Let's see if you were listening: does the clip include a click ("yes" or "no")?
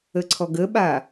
yes